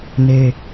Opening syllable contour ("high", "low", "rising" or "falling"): high